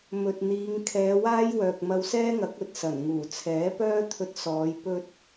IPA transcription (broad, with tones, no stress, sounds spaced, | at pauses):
m ɵ˨ t̚ n̪ iː˨˧ ŋ kʰ ɛː˨˧ w aː˥ j w œː˨ k̚ m ɐ˧ w s ɛː˥ ŋ ɐ˨˥ k̚ ɵ˨ t̚ s ɐ˨˩ n ŋ uː˨˩ t͡sʰ ɛː˨˥ p œː˥ t̪ʰ ɵ˧ t̚ s ɔː˨˧ j p ɵ˧ t̚